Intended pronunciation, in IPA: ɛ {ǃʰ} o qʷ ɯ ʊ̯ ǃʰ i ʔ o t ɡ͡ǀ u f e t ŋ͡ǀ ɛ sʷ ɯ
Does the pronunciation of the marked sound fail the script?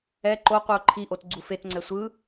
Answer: yes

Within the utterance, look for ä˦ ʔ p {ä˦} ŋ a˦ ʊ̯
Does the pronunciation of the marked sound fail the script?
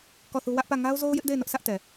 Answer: yes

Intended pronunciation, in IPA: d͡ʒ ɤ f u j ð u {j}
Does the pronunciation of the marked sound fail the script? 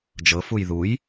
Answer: no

